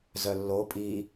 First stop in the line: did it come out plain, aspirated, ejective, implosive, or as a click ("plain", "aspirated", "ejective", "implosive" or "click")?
ejective